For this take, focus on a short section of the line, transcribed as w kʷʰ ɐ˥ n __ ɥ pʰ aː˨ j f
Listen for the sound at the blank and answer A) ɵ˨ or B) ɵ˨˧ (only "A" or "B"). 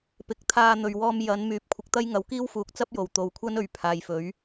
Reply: A